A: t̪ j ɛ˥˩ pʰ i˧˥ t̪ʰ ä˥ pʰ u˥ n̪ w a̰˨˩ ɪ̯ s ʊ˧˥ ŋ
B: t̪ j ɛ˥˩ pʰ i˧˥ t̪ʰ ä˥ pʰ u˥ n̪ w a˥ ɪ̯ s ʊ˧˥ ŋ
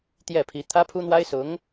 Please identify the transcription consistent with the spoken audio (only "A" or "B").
B